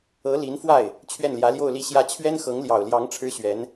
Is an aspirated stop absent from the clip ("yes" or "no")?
no